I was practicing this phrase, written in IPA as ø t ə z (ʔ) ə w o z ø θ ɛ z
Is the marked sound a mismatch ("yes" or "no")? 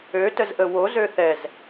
no